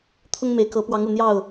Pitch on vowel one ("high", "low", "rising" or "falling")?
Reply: high